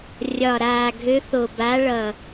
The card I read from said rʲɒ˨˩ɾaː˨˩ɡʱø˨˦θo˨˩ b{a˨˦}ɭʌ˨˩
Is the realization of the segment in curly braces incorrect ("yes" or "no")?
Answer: no